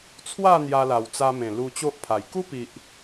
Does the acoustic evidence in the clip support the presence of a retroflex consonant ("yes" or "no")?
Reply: no